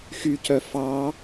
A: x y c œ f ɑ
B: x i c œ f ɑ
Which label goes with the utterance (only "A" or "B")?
A